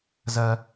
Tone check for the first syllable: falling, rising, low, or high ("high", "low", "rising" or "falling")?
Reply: high